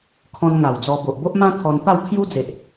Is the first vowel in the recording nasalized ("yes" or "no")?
yes